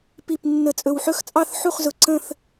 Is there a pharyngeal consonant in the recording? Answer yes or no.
yes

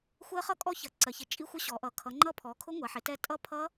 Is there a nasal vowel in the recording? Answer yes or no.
no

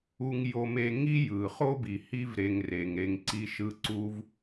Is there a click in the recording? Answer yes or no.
yes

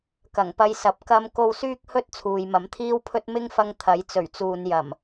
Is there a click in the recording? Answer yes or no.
no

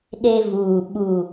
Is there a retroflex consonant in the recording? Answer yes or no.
no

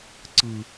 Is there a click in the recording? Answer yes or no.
yes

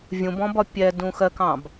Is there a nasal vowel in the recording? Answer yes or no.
yes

